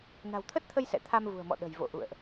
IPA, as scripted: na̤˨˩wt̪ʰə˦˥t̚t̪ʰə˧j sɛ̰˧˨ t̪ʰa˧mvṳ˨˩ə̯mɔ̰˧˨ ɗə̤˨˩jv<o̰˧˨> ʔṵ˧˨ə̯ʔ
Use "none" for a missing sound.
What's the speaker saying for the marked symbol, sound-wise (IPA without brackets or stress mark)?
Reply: o̰˧˨